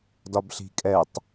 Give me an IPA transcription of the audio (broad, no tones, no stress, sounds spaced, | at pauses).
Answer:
d ɒ b ɬ i̤ kʼ ɛ tˤ